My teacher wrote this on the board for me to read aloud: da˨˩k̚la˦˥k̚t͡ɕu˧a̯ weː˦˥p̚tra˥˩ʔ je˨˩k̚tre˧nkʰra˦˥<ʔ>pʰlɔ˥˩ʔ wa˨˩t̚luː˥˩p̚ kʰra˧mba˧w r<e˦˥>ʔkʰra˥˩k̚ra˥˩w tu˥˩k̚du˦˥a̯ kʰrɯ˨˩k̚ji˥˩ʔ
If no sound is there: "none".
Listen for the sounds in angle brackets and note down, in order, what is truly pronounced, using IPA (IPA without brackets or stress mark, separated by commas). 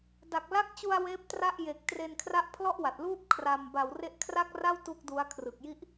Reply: ʔ, e˦˥